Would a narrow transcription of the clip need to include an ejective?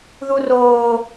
no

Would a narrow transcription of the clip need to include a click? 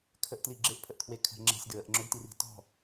yes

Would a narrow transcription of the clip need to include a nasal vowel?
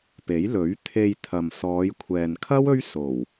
no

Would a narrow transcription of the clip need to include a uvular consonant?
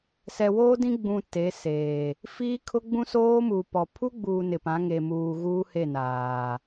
no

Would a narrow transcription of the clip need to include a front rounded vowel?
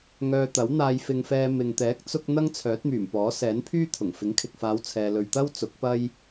yes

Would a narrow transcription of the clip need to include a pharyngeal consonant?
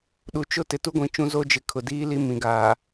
no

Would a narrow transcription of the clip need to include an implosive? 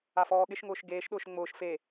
yes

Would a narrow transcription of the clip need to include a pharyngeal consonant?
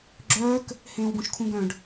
no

